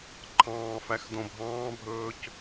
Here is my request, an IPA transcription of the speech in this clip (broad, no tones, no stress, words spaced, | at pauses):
ǃʰɑ̃ːfæx dõbʱɑ̃ːbʱɵːc